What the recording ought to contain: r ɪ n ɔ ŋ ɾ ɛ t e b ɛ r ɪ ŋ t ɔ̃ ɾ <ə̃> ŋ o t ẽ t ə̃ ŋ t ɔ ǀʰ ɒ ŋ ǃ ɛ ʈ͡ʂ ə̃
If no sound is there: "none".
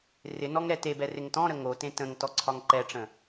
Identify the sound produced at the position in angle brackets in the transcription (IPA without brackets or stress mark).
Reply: ə